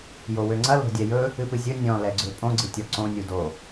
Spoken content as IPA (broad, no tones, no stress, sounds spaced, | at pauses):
j o w ø ŋ͡ǀ ɐ l o̤ dʲ ɛ j ɵ | ɨ p ɨ zʲ ɵ nʲ ɔ̃ l ɛ ɡ͡ǀ ø pʼ õ ɡ͡ǀ ɨ tʲ ɔ ǀ õ nʲ u d o